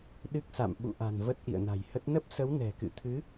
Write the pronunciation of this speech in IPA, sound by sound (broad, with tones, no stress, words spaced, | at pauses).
ɗɨ˦˥k̚sa̰˧˨m ɓṵ˧˨ʔa̤˨˩n və˦˥t̚ʔḭ˧˨ə̯na̤˨˩jhə˦˥t̚ nə˦˥p̚sə˨˦w nɛ̤˨˩kɨ̰˧˨ t̪ʰɨ˨˦